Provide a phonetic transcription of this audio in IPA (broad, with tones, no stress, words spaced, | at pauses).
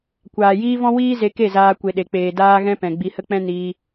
kʷaː˨jiː˦vɔ̃˦ wiː˦ze˧ ke˦˨zaː˧ kʷe˨ɗe˨k͡peː˨ daː˦ɣɛ̃˦ pɛ̃˨ɡ͡bi˧hə˦k͡pɛ̃˦ niː˧